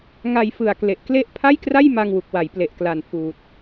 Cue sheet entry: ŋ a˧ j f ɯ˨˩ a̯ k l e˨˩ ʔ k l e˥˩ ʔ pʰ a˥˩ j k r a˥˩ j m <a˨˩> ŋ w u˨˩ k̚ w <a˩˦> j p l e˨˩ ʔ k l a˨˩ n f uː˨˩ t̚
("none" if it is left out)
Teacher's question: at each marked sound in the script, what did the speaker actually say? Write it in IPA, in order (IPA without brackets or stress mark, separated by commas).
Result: a˧, a˩˦